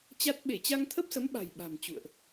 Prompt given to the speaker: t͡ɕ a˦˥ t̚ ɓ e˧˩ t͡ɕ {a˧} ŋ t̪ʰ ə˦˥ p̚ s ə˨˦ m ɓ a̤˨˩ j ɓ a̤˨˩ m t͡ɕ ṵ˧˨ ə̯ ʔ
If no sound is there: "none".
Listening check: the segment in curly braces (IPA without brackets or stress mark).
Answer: a˧